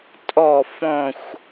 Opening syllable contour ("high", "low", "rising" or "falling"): falling